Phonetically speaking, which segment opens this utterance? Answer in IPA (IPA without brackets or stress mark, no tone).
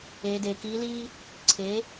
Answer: eː